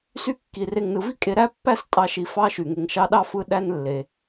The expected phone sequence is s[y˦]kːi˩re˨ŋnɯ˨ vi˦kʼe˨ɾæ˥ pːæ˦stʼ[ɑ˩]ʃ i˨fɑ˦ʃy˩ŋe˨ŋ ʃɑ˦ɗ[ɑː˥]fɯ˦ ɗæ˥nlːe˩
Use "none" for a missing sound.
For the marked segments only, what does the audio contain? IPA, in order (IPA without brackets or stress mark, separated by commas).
y˦, ɑ˨, ɑ˥